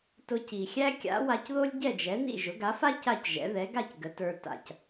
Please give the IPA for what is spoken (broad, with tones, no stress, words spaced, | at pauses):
tʊ˧ci˩xʲæ˥ kʲa̰˩˥wa˧cðo˥lʲ ɟɛ˥˩d͡ʒɛ˩˥nḭ˥˩ ʒʊ˩˥ɡa˩˥fa˥ ca˥˩cʒɛ̰˩˥ ðɛ˩˥ɡa˥˩c ɡə˩˥tə˞˧ ta̰˩c